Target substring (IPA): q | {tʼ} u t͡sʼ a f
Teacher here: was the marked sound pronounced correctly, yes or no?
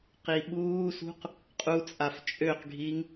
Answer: no